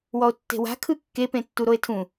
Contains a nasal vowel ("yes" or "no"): yes